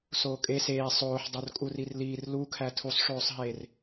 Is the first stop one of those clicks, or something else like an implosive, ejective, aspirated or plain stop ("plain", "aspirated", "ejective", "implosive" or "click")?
ejective